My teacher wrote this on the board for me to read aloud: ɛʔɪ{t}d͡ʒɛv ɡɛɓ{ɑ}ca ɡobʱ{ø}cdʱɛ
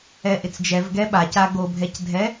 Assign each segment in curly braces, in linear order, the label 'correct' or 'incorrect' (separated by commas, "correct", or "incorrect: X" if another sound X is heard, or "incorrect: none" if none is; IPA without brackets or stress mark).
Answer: incorrect: t͡s, incorrect: a, incorrect: ɛ